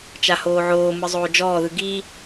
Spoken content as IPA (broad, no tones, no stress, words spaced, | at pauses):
t͡ʃahoːʕoːmɯ zˤoːd͡ʒɔːðɯ ɡi